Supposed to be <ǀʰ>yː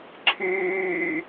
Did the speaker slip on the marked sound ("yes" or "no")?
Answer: no